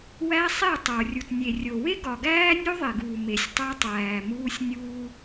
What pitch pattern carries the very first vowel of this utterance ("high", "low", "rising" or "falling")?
high